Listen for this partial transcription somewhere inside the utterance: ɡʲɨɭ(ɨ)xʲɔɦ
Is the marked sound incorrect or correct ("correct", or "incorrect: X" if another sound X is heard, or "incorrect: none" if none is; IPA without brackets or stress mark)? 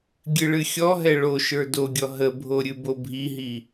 correct